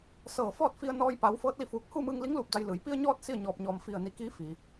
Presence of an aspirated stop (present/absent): absent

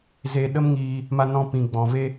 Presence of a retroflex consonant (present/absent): absent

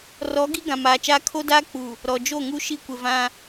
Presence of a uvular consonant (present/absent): absent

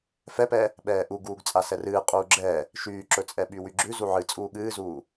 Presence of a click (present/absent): present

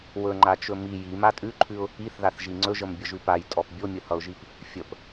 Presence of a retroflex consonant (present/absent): absent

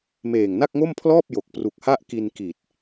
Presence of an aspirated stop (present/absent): present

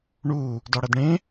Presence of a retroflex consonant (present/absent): present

